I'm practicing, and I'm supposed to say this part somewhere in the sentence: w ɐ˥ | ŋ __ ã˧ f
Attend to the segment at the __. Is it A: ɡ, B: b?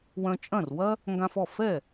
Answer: A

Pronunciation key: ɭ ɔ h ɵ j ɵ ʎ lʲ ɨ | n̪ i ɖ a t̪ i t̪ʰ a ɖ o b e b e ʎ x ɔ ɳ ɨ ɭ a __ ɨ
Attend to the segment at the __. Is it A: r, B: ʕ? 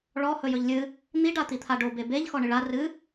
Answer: A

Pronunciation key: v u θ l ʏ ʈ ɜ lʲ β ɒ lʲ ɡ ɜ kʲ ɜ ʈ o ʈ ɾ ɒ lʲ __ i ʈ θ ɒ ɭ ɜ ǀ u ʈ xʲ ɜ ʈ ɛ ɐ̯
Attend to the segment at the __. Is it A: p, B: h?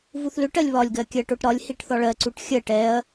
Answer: B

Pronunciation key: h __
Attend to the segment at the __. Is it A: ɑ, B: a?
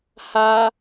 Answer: B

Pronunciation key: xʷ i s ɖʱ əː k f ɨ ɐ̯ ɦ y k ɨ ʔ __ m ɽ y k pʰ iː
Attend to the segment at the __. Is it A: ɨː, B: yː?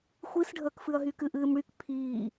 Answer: A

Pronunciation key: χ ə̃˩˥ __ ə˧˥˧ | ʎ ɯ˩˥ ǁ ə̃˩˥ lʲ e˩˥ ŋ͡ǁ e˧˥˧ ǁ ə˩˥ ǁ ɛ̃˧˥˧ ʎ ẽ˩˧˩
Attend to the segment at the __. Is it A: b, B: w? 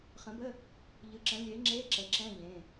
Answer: A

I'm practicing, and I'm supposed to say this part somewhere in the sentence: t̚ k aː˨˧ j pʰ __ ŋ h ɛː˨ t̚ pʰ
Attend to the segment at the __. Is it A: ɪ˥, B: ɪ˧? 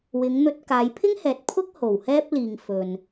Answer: A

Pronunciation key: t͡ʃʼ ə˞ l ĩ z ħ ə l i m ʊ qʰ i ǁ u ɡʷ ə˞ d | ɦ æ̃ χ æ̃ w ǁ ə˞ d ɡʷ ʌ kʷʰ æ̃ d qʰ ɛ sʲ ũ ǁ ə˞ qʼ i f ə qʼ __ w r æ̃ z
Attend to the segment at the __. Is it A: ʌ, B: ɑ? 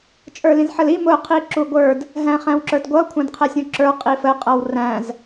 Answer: A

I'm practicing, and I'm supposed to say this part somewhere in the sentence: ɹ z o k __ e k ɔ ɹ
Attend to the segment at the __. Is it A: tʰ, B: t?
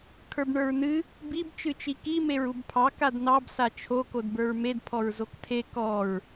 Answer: A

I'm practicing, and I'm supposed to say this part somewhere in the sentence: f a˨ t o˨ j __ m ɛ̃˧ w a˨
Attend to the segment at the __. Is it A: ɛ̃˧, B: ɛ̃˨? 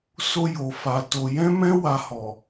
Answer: A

